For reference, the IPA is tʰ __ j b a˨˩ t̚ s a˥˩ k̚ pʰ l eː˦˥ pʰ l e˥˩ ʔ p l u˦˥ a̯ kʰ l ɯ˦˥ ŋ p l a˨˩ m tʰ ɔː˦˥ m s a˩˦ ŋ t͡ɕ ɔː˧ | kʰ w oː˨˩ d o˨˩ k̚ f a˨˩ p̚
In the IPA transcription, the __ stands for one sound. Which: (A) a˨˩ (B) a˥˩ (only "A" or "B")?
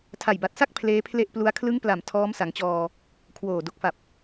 A